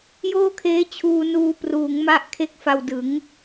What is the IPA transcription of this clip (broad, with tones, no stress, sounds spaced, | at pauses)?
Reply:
j oː˥˩ kʰ eː˦˥ t͡ɕʰ uː˧ n uː˧ p r uː˩˦ ŋ m a˦˥ ʔ kʰ e˦˥ k̚ f a˧ w d ɯ˩˦ ŋ